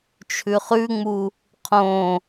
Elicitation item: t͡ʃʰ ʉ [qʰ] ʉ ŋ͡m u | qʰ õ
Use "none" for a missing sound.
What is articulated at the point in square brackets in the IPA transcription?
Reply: χ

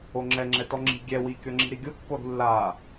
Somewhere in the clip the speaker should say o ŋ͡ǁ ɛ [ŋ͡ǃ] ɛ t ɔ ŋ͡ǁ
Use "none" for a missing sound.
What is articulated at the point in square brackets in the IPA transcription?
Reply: ŋ͡ǁ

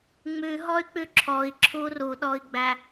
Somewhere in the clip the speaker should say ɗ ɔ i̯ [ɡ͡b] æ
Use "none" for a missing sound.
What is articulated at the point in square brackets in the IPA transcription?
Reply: ɡ͡b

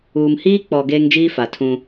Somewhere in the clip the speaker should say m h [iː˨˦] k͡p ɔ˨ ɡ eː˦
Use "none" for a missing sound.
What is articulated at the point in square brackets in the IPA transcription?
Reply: iː˦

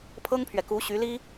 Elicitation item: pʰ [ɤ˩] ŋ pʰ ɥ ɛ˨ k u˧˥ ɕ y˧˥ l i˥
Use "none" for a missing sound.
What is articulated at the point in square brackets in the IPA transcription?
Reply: ɤ˥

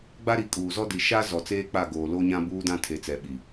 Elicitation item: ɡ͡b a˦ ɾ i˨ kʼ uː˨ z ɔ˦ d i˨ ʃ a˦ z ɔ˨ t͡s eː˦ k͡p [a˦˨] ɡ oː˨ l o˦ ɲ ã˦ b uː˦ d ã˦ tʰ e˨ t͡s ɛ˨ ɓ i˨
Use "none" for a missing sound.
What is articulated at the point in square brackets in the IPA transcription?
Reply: a˦˨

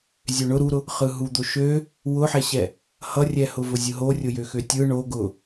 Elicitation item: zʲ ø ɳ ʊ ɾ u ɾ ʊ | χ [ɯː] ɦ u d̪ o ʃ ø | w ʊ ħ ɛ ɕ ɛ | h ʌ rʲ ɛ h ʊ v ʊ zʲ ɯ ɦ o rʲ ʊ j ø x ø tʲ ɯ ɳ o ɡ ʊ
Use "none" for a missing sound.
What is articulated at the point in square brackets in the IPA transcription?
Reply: ɯ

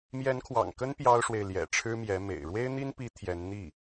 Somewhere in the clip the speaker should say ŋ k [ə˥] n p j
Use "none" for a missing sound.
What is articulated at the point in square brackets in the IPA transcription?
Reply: ə˥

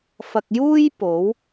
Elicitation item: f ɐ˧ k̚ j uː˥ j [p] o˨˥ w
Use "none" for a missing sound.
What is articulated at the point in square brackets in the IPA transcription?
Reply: p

